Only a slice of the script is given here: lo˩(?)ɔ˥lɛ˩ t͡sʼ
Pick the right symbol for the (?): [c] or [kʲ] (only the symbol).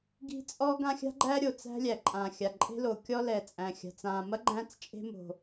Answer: kʲ